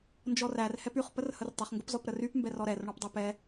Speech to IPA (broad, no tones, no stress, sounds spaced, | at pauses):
n d͡ʒ ɔ r æ r h ɛ p y χ p ə r h ə r tˤ ə χ ŋ ɡ ə p z ɔ p ɾ ə r y p m b ɛ r ɔ ɾ ɛ r ɳ ɔ p dˤ ɛ p ɛ